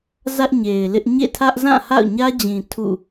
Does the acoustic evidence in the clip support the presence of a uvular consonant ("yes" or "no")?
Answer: no